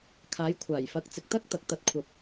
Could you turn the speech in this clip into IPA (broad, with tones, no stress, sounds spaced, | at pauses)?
kʰ aː˨˧ j kʷʰ aː˨˩ j f ɐ˨˥ k̚ t͡s ɪ˨ k̚ t̪ ɐ˥ k̚ t̪ ɐ˨ k̚ t̪ ɐ˧ t̚ kʷʰ ɐ˨ p̚